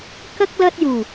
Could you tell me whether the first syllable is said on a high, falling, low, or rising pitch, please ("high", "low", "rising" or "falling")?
high